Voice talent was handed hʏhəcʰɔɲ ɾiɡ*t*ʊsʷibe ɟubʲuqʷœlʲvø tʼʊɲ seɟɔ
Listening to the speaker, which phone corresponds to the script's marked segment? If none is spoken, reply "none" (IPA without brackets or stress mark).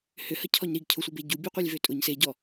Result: cʰ